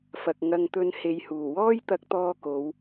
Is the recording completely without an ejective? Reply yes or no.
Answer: yes